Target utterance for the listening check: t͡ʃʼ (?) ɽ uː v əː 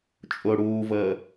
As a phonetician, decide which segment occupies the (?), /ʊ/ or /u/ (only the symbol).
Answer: ʊ